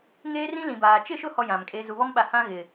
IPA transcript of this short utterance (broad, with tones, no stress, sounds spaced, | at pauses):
ŋ eː˦ r ĩ˦ l ĩ˨ b aː˨ t͡ʃ ɪ˦˨ ʃ ʊ˦˨ h ɔ˦ j ã˨ m kʼ e˦ z u˨ β ɔ˦ m ɓ a˨ h ã˦ ɣ ɪ˨